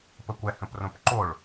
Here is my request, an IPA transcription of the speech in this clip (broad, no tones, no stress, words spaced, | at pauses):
pəkʷɛ hə̃prõpǃoɭ